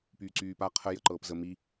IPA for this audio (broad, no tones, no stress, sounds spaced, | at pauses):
p yː ǀ yː p a qʰ ə j ə ǃ ɤː p z ə m i